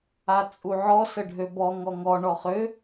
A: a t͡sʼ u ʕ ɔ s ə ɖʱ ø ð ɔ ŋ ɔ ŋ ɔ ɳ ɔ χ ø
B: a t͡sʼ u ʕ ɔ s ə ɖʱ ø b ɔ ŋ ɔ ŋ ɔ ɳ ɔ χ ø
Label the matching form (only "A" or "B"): B